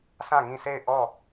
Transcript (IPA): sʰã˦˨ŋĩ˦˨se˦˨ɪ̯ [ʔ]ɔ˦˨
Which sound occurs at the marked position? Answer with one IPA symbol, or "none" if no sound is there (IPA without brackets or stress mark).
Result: ʔ